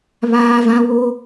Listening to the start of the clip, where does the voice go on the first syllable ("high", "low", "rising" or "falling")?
high